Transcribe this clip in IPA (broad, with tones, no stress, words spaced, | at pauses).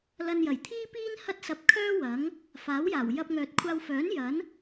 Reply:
lɐ˧njɐ˨˩jt̪ʰiː˥piː˥n hɐ˥t̚sɐ˧p̚kʰœː˥wɐ˨˥ŋ | faː˨˥wjaː˨˩w jɐ˧p̚ŋœː˨t̚kʷʰaː˧wfœː˨˥n jɐ˨˥n